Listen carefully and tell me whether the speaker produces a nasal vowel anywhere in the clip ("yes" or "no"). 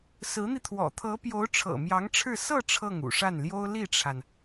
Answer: no